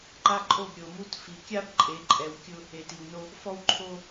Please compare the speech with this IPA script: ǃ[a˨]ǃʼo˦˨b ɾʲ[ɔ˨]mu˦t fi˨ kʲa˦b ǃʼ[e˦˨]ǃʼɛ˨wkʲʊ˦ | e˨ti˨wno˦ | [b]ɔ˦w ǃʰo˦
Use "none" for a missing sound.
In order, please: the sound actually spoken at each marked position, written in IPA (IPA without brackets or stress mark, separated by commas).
a˦, o˨, e˨˦, f